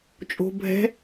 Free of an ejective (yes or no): no